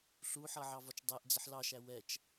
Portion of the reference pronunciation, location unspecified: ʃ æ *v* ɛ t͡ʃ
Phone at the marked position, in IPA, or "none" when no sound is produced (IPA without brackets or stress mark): w